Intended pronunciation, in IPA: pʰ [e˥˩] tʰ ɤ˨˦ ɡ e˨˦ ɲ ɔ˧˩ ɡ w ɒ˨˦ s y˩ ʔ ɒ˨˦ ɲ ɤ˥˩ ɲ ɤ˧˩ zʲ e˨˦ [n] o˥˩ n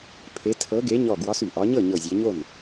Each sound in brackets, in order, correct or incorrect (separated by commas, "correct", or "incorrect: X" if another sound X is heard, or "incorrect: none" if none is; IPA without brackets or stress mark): incorrect: e˨˦, incorrect: ɲ